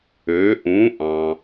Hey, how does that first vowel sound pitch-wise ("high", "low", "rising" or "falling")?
rising